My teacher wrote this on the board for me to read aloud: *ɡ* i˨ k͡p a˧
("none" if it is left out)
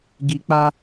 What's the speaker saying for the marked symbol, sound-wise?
ɡ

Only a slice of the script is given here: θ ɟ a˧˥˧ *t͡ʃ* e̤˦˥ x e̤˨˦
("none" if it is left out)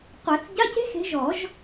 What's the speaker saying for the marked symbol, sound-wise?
c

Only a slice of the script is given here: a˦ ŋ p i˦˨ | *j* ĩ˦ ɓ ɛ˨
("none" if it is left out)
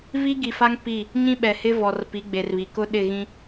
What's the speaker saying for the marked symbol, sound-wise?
ɲ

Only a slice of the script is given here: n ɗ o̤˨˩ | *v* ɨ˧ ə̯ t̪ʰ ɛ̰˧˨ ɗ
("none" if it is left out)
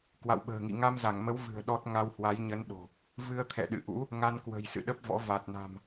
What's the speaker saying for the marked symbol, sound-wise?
v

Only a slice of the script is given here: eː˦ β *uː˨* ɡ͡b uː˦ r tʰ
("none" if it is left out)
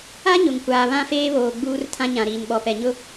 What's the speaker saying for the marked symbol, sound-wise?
oː˨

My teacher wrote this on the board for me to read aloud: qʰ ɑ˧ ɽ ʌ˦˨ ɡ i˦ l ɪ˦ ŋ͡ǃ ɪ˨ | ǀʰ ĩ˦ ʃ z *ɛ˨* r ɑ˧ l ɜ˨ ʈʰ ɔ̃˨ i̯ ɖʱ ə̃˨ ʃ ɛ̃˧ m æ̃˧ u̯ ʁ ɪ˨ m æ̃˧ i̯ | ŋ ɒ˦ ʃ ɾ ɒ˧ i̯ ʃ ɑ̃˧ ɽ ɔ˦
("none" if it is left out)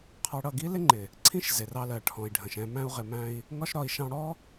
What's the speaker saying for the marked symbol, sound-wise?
ɪ˨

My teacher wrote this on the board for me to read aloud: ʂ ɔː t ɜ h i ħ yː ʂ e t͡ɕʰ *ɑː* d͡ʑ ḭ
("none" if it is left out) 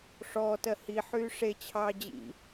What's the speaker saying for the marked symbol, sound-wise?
ɑː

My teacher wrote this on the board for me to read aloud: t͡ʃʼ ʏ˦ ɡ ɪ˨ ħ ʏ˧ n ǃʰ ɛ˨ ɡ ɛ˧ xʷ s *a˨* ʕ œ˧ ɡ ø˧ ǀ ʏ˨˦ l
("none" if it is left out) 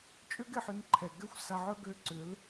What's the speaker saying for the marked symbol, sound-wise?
a˨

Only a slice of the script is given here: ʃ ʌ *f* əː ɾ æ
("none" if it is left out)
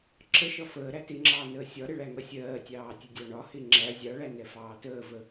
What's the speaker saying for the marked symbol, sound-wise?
f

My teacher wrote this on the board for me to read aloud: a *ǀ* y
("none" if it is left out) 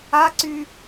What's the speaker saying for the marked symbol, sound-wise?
ǀ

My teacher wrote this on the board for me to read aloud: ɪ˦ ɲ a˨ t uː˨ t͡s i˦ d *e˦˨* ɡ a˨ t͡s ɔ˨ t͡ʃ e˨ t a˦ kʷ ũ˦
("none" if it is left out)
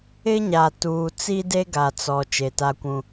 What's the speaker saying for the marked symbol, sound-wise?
e˦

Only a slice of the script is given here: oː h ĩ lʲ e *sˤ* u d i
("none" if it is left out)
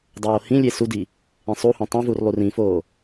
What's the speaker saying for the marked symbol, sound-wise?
s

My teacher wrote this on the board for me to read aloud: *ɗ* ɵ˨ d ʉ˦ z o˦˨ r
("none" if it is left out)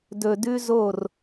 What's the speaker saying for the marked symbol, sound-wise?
d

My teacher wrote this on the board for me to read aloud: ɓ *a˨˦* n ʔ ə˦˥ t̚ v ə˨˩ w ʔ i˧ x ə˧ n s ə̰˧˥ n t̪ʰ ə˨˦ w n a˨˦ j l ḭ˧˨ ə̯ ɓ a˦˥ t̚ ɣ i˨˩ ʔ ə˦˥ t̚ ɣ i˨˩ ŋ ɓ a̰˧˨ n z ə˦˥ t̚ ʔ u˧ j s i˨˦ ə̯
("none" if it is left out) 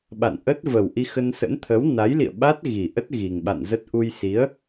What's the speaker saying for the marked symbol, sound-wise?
a̰˧˨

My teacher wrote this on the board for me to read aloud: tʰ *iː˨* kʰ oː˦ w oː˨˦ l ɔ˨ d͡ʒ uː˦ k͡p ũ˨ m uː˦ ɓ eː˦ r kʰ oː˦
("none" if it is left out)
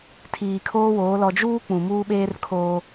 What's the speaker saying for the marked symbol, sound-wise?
iː˨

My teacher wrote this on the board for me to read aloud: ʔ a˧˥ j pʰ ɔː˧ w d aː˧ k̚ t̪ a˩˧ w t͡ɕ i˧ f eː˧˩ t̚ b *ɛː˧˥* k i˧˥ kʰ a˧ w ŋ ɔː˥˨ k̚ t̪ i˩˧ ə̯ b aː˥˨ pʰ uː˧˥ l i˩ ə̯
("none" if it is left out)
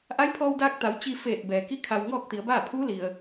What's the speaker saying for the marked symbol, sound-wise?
ɛː˩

